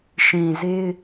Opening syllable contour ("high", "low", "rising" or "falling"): low